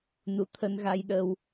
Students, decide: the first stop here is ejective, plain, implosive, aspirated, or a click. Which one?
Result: aspirated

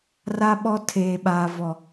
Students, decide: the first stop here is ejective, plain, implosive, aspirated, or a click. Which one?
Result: implosive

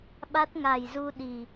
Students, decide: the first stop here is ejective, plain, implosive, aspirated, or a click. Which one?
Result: implosive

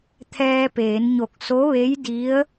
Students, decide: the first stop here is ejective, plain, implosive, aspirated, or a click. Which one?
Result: aspirated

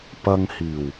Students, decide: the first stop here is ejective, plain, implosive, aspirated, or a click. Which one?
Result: plain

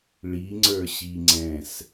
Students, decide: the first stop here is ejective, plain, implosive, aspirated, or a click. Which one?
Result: click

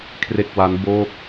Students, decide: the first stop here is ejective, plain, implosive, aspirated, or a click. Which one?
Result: aspirated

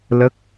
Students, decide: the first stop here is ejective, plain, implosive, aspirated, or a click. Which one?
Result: plain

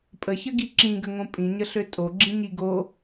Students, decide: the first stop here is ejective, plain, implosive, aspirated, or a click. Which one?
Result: ejective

